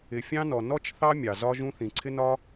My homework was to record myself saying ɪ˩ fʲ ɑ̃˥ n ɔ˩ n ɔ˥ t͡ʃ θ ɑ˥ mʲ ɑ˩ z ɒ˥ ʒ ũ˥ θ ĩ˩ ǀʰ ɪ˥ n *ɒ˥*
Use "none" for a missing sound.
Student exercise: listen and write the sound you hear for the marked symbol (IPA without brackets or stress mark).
ɒ˥